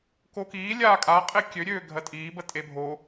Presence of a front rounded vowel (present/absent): present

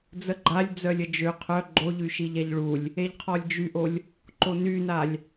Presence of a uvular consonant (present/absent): present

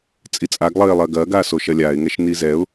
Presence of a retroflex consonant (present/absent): absent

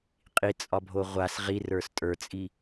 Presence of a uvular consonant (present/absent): present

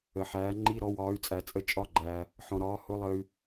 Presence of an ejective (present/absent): present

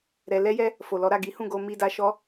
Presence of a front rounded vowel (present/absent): absent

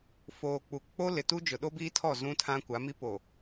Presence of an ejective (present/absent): absent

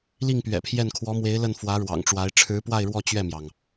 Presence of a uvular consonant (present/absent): absent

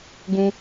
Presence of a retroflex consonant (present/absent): absent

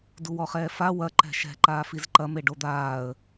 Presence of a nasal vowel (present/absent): absent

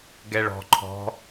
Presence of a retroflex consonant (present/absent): present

